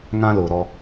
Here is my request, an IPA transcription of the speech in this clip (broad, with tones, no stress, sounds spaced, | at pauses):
ŋ ã˦ l ʊ˨ ɾ ɔ˦